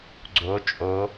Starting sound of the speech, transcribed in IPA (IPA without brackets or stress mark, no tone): ɡ͡ǀ